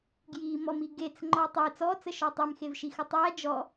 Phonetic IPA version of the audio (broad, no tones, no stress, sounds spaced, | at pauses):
ɡ j i m ɔ m i ɡ e t͡s ŋ͡ǃ ɔ tˤ e t͡s ɔ t͡s ə ʃ ɔ tˤ e m x e v ʃ i x ə tˤ æ d͡ʒ ɔ